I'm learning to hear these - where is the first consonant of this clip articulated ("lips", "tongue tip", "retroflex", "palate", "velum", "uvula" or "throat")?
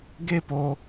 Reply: velum